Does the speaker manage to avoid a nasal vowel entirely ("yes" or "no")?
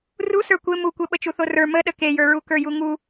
yes